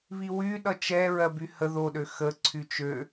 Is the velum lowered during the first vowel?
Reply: no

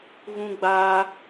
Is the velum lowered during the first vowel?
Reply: yes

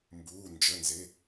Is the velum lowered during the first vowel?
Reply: no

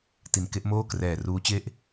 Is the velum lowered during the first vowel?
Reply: no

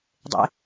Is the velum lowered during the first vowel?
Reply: no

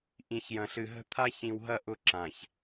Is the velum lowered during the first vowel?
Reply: yes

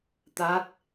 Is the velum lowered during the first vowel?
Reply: no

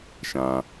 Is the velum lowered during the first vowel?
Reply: yes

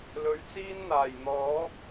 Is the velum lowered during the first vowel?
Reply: no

